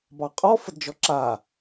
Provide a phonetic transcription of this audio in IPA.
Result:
bɑqʼɔ fədd͡ʒɔǁa

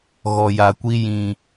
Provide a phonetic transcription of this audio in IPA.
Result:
ɣɔ˨ja˨kʷi˦ jĩ˨

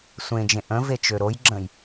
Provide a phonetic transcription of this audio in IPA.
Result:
sʷẽd͡ʒẽ ʔə̃vet͡ʃø ɾojɡ͡ǁə̃j

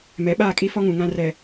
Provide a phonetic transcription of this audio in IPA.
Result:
mɛ˨˦ɓaː˦˨kʼi˦fɔ˦ ŋũ˨ŋã˦ rɛ˨

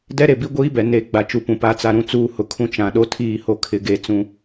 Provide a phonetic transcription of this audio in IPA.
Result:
dɛ˦ɾe˨bi˦ ɡʷiː˦bɛ˨ ne˨ ɡ͡ba˦t͡ʃu˦pũ˨ pa˦t͡sa˦ ɾũ˦t͡suː˦hʊ˨kʰũ˦ t͡ʃã˨ɗo˦tʰiː˦˨ho˦ kʰɪ˦ɡe˦ t͡sũ˦

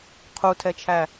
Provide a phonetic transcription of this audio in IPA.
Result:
qʰutʰɛt͡ʃʰæ

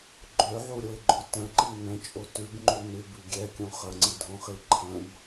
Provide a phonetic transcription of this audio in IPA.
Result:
ɡ͡ǃøʕuɾʲoɪ̯ɡ͡ǃo tə̃ǃi nə̃t͡ʃʼo tʉbŋ͡ǃu nʉbʉ ɡʲɛkʲõ χəŋ͡ǀidʱõχi ǃʰə̃b

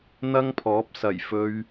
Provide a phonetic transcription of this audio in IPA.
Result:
n̪ɐ˥ŋpʰɔː˨˥p̚sɐ˨˩j fɵ˥ɥ

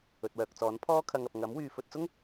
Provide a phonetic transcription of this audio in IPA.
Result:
ɵ˨t̚wœː˨k̚t͡sɔː˨˥n pʰɔː˥kʰɐ˧ŋɐ˨p̚ ŋɐ˨˥m wyː˧ fɵ˧t̚t͡sʊ˥ŋ

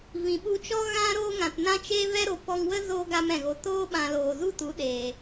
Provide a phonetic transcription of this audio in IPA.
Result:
vĩ˨ɓu˧t͡ʃɔ˦ ɣã˦ ɾoː˦ŋã˨tnã˦ t͡ʃeː˦vɛ˦ɾo˨ pɔ˧ŋwə˦zo˧ ɡa˦mɛ̃˨ɣo˧ toː˦ɓã˨ loː˨zu˦tu˨˦ ɗeː˨

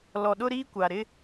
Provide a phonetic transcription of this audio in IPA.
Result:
lɔ˨ɗʊ˦ɾiː˦ kʷa˨ ɾɪ˦

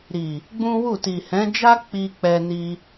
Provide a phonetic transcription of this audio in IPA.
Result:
ɾi˨ | ɡ͡bũ˦wu˦˨ ti˨hɛ̃˨˦d͡ʒa˦ k͡pi˦ k͡pɛ˦ni˦

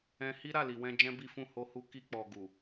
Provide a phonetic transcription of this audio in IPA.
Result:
ɛ̃˧hi˦ ɾa˦˨li˨wɛ̃˧ d͡ʒɛ̃˦bi˦fũ˦˨ ho˧hu˧ki˧k͡pɔ˨ ɡu˨

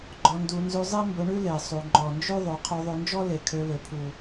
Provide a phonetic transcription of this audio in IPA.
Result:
ɡ͡ǃɔ˧ndu˧ nzʉ˧zˤe˦ mbɵ˧ɳʉ˦ le˨sˤu˨ ŋ͡ǃɔ˨nd͡ʒʉ˦ðˤo˨˦ qʰo˧ðˤø˧nd͡ʒɔ˦ le˨kʰø˧lø˨ pʰu˨

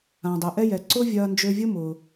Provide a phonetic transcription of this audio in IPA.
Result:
ã˩dˤø˩ʔɛ˥jɛ˩ ǀʊ˥vʲɐː˧nd͡ʒø˧vʲʊ˥ mʊː˩

